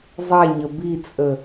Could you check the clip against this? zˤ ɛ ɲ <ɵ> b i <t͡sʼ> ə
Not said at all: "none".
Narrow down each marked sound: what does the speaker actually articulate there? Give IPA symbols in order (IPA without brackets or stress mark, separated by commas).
ə, t͡sʼ